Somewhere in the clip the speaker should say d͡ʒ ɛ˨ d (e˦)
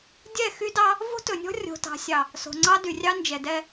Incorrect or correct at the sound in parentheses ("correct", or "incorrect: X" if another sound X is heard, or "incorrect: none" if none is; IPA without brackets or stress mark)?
incorrect: ɛ˦